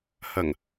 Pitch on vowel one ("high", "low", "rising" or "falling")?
low